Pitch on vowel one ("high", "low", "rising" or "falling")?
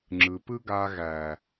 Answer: low